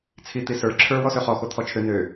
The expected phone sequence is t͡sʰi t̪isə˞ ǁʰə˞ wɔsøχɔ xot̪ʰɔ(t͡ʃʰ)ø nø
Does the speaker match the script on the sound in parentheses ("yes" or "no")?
yes